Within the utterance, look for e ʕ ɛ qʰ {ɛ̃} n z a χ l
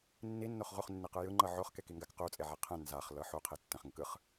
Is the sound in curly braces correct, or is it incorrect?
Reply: correct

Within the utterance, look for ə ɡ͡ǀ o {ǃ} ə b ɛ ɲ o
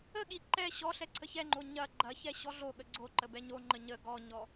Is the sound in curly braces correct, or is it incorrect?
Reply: correct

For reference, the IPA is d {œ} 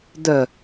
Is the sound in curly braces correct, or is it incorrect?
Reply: correct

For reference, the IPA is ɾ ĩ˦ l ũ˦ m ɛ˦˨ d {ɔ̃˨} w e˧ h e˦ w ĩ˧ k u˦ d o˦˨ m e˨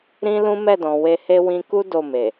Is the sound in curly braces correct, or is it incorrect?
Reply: correct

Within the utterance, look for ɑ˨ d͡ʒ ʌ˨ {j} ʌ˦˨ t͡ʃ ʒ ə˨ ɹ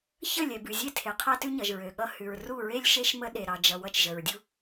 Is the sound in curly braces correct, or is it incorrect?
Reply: incorrect: w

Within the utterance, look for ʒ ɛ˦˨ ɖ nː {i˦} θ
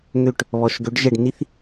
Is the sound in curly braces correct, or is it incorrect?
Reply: correct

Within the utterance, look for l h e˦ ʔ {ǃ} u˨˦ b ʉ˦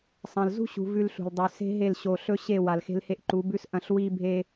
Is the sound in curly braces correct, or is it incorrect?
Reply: correct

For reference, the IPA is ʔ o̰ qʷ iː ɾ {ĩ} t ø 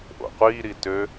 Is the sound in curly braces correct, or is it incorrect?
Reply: incorrect: i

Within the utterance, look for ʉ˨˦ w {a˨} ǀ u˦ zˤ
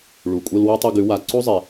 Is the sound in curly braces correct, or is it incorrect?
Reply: correct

